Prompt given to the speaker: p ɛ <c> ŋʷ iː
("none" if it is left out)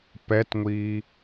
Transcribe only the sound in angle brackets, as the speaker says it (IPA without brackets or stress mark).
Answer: t